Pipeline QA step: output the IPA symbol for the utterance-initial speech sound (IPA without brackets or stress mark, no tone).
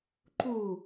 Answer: ǃ